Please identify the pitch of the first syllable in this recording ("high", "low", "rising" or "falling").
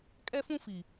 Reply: high